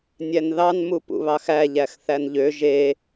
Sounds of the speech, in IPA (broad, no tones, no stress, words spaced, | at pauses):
nʲænðɑnmu pṵβɑxæ ʎæxθænʎø ʒe